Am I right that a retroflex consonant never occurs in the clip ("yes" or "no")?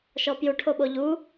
no